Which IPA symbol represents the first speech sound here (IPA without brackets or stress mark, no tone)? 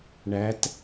ɳ